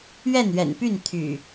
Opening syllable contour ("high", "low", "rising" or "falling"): falling